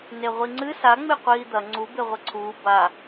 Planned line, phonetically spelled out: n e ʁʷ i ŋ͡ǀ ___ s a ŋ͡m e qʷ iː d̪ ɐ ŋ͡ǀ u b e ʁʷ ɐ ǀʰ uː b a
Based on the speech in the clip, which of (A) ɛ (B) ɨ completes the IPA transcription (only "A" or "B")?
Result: B